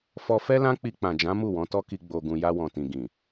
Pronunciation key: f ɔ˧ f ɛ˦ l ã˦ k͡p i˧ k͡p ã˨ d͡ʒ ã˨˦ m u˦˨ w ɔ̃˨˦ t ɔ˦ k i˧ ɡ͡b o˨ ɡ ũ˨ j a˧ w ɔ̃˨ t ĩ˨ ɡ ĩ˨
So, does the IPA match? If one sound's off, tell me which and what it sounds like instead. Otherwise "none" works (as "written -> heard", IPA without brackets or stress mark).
none